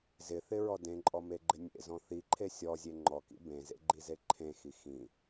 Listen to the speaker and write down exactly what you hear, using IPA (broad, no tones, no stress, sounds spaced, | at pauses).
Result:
z ɪ θ ɪ ɹ ɔ d ẽ ǃʼ ɔ m e ɡ͡ǃ ɪ nʲ ḛ z ɔ̃ θ i ǃʰ e sʲ ɔ zʲ e ŋ͡ǃ ɔ k ḭ b ẽ z ḛ ɡ͡ǃ i z e ǃʰ ẽ x i x ĩ